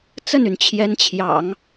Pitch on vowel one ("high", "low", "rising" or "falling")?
falling